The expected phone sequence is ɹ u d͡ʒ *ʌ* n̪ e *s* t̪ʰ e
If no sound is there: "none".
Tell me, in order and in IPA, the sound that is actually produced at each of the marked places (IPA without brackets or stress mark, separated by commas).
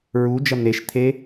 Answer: ʌ, ʃ